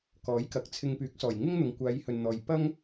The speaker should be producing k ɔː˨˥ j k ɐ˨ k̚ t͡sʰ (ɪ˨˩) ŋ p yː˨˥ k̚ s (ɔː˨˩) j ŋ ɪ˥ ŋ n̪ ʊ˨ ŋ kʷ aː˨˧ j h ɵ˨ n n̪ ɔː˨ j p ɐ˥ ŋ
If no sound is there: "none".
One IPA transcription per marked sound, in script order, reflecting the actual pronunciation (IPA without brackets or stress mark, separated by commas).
ɪ˧, ɔː˨˩